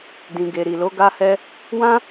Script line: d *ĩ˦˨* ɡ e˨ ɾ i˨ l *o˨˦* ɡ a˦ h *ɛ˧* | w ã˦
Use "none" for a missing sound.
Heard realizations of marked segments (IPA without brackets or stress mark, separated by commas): ĩ˨, o˨˦, ɛ˦